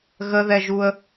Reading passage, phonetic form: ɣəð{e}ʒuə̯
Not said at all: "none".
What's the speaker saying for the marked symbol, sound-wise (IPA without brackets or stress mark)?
ɛ